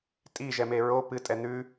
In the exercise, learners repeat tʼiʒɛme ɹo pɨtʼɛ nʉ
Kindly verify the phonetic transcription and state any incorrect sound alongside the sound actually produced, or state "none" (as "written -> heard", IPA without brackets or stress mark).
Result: none